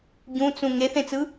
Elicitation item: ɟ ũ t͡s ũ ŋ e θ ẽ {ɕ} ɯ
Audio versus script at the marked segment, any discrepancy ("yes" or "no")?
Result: yes